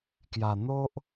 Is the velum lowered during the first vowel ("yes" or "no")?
no